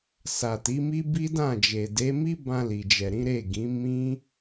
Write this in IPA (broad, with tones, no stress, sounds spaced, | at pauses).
s a˨ t i˨˦ m i˦ b i˦ d ã˦˨ d͡ʒ e˨ d e˨˦ m i˦ b ã˧ l i˨ d͡ʒ ɛ˨ ɾ ĩ˨˦ ɾ e˦˨ ɡ ĩ˨˦ m ĩ˦